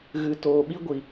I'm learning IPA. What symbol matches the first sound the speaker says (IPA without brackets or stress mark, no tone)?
ɣ